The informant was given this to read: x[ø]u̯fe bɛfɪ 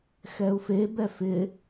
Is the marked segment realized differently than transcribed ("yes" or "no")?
yes